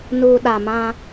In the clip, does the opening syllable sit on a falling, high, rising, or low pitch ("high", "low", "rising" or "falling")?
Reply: low